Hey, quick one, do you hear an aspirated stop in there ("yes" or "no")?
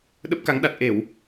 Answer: no